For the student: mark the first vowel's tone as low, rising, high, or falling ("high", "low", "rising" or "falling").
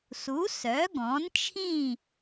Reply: rising